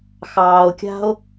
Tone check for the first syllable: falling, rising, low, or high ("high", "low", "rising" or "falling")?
low